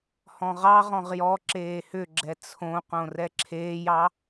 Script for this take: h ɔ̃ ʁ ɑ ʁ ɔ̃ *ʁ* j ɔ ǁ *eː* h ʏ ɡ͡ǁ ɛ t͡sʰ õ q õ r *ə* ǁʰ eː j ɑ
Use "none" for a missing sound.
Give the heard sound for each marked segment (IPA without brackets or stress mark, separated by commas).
ʁ, eː, ɛ